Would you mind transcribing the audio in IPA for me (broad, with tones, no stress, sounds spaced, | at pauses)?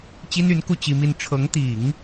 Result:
t͡ɕ i˥ n y˧˥ n k u˥˩ t͡ɕ i˥ m i˥ n ʈ͡ʂʰ ɤ˧˥ ŋ t̪ i˨˩˦ ŋ